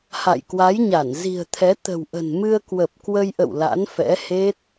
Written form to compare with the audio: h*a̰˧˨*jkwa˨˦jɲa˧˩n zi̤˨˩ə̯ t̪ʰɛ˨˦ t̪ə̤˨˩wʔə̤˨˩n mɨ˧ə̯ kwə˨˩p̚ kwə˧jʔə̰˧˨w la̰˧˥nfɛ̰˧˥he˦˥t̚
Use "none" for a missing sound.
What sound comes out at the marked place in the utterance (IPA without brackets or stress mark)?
a̰˧˨